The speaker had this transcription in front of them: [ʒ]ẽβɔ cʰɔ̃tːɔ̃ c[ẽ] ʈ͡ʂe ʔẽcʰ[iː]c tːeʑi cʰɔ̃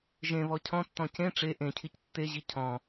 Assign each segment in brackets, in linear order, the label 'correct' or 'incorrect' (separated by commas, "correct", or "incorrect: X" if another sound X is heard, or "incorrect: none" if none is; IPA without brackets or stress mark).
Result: correct, correct, incorrect: i